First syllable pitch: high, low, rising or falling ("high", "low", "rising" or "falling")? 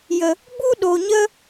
low